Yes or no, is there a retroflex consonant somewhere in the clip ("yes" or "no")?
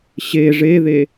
yes